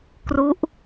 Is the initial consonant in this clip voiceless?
yes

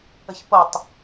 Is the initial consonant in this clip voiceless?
yes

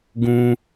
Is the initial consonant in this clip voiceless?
no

